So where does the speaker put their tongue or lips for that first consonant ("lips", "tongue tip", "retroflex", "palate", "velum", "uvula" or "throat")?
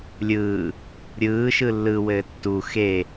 tongue tip